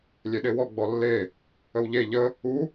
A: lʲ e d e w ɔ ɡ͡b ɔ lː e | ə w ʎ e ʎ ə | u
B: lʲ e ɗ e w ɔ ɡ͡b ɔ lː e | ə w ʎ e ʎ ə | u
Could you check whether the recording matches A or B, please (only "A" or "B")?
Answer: B